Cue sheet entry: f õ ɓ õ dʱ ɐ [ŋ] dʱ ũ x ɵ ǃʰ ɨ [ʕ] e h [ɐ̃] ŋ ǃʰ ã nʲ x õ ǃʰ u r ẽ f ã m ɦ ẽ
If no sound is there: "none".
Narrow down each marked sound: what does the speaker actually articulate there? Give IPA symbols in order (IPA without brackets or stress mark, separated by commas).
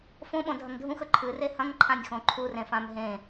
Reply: ŋ, r, ɐ̃